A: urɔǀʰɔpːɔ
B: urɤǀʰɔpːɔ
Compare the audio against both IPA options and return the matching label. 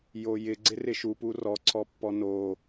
A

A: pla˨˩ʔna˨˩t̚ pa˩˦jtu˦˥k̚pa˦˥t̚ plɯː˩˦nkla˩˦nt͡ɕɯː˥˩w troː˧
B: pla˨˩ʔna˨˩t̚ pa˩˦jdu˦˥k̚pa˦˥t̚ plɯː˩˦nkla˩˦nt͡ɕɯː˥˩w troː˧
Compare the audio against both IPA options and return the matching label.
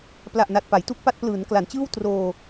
A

